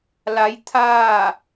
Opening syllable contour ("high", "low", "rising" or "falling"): rising